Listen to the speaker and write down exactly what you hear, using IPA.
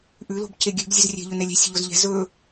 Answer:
ʔ ʉ l o̤ b c e ɡʲ ʉ b zʲ ʉ z rʲ ɛ̤ ʎ ɵ n ɛ lʲ ɛ̤ sʲ ə ʎ o z ʎ ɛ̤ z ɵ

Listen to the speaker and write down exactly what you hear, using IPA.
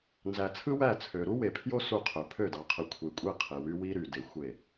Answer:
n z æ˨ t͡sʰ ɯ˦ w æ˦˨ t͡sʰ ø˨ ɾ u˦ w e˨ pʰ j o˦ s u˦˨ qʰ ø˨ pʰ ø˦˨ d ɑ˨ qʰ ɯ˨ kʷʰ e˨ kʷʼ e˦˨ qʰ e˨ w y˦ w i˦ ɾ y˨ d e˨ xʷ e˦˨

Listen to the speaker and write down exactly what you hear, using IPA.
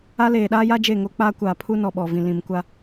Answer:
a˦ l eː˨ ɗ aː˦ j a˦ d͡ʒ e˦˨ ŋ o˦ k͡p aː˦ kʷ aː˨ pʰ u˦ n ɔ˨ ɓ ɔ˨ v ĩ˨ l ĩ˨ m kʷ a˦

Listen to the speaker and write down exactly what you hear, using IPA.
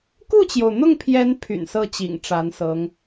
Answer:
k u˥˩ t͡ɕ j o˩ ʊ̯ n̪ ʊ˥˩ ŋ pʰ j ɛ˧˥ n pʰ y̰˨˩ n s ɤ˥˩ t͡ɕ ḭ˨˩ ŋ ʈ͡ʂ a˧˥ n s ɤ˧˥ ŋ

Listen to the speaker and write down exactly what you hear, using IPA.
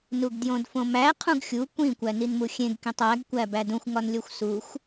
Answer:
n u ɡ d j õ d f õ m æ qʰ ũ ɡ xʲ u kʷ ĩ kʷ æ n i n m u xʲ ẽ ɡ k ĩ tˤ æ ɡ kʷ æ b æ d ũ xʷ ŋ ɒ n lʲ o xʷ s u xʷ

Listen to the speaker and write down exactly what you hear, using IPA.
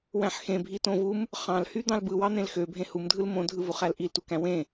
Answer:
w æ̃ ħ x ẽ bʱ i t õ v u m | χ ɑ̃ l h y d̪ ɑ̃ l b ɯ w ɑ n̪ ẽ l x ø bʱ ẽ h u m dʱ ɯ l m õ dʱ ɯ v u χ æ l ʔ i l t u k æ̃ w ẽ

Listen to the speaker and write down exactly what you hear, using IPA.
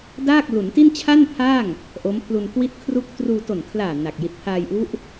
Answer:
d aː˥˩ k̚ l u˩˦ n t i˥˩ n t͡ɕʰ a˥˩ n pʰ a˥˩ ŋ | ʔ o˦˥ m pʰ l u˧ n k w i˥˩ t̚ kʰ r u˥˩ k̚ t r uː˧ t o˨˩ n kʰ l aː˨˩ n a˨˩ k̚ j i˨˩ t̚ pʰ aː˧ j ʔ u˦˥ ʔ

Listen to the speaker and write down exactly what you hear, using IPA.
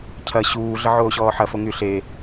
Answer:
cʰ ɐ ɕ uː ɮ ə ʕ oː ɕ ɔː ħ ɐ f o ŋ y ɬ e

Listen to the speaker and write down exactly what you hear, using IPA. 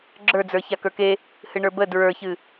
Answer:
ɡ͡ǁ ə˞ d͡z ə˞ ç a k ə˞ k e | h ɨ ɳ ə˞ b ə d ɹ ə˞ ç ɨ

